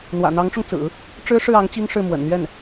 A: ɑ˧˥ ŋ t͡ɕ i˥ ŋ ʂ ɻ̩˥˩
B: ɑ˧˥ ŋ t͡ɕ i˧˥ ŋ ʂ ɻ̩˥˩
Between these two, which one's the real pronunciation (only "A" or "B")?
A